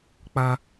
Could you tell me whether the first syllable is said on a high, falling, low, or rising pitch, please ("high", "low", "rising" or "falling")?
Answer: high